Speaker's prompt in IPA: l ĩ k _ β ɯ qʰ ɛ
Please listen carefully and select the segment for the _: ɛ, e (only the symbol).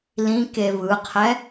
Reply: e